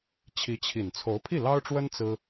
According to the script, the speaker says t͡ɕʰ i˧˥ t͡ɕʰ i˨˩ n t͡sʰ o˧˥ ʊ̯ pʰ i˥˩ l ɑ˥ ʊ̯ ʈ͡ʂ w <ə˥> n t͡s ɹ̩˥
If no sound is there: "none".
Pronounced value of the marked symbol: ə˥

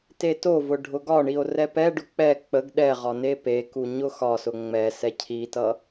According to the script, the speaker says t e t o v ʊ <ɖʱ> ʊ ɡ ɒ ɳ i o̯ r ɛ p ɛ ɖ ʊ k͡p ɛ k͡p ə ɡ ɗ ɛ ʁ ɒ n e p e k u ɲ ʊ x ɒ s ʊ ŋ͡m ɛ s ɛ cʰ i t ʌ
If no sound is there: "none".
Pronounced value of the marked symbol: ɖʱ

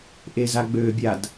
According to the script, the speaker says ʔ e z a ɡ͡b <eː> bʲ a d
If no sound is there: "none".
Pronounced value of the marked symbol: øː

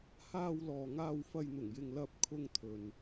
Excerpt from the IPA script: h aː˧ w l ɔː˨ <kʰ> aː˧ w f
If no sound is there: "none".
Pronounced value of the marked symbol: ŋ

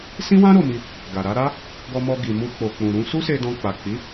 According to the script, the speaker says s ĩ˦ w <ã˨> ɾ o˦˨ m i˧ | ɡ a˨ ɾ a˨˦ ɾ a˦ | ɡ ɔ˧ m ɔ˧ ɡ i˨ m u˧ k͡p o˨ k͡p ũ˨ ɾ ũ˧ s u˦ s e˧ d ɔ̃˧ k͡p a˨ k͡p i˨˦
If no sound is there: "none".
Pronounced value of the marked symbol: ã˦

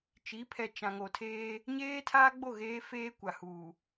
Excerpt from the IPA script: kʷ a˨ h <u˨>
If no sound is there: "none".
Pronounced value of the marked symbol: uː˨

